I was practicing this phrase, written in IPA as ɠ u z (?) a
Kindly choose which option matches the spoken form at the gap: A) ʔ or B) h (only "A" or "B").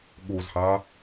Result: B